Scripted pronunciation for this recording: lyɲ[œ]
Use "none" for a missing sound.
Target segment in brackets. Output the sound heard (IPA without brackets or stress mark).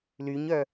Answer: œ